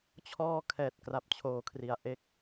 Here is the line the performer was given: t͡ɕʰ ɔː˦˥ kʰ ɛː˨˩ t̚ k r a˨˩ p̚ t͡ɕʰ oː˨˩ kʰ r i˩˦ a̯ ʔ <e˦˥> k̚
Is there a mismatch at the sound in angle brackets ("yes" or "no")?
no